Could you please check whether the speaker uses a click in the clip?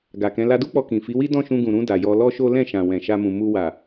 no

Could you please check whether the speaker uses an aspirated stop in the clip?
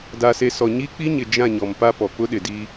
no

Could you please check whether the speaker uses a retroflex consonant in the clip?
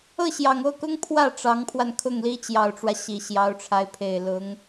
yes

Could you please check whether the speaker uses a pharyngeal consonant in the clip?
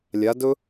no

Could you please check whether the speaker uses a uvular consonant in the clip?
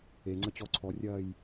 no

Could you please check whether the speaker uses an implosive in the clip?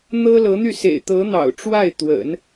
no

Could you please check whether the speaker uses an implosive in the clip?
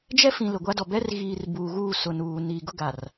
no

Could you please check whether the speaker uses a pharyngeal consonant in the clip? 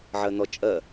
yes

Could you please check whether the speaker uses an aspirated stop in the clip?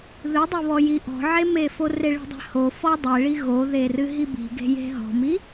no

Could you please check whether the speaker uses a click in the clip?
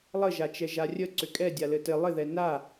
yes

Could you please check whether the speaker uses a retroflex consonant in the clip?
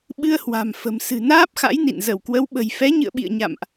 no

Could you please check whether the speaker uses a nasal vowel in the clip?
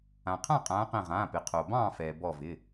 yes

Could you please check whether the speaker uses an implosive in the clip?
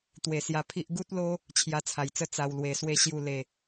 no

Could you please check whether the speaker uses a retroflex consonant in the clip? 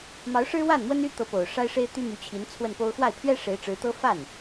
yes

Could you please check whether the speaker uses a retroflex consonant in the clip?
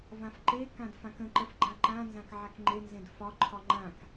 no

